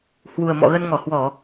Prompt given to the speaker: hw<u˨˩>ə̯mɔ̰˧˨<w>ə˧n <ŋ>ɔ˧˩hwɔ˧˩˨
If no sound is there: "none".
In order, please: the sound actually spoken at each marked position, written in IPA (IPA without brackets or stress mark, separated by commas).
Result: u˨˩, ɣ, ŋ